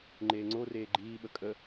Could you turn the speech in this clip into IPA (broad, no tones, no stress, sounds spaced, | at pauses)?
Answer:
ŋ͡ǃ eː ŋ͡ǀ o r eː ɡ͡ǃ iː ɓ ə kʼ ə